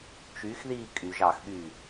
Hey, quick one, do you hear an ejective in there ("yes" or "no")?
yes